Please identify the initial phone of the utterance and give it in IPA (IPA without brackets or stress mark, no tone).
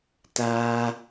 t